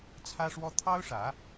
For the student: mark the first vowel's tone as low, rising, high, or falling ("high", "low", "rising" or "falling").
high